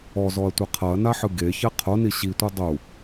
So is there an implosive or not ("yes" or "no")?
no